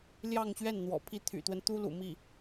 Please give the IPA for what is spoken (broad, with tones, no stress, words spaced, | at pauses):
ljɑ˥˧ŋɕɥɛ˥˩n n̪wɔ̰˨˩pʰi˥˩ t̪ʰy̰˨˩t̪wə˦n t̪u˥lṵ˨˩mi˥˩